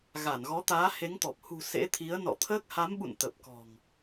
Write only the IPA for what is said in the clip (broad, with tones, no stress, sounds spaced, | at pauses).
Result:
ɣ aː˧˩ n ɣ ɔ˨˦ t̪ aː˨˦ h e˨˦ ŋ t̪ ɔ˨˩ p̚ h ṳ˨˩ s ḛ˧˥ t̪ʰ i˨˦ ə̯ n ɔ̰˧˨ t̪ʰ əː˦˥ k̚ h a˨˦ m ɓ ṵ˧˨ n t̪ ə˨˩ p̚ k ɔ̤˨˩ ŋ